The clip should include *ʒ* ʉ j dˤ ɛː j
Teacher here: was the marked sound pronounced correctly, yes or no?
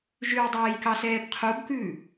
yes